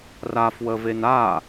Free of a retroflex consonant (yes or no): yes